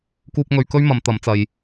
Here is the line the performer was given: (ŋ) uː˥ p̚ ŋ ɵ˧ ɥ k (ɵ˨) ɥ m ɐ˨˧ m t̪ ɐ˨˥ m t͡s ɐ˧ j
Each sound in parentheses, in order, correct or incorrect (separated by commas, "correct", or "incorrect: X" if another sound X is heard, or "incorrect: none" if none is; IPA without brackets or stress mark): incorrect: k, incorrect: ɵ˥